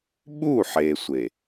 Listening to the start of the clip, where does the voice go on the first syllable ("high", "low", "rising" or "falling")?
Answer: falling